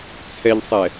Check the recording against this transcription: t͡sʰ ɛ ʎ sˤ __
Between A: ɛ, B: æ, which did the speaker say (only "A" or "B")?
A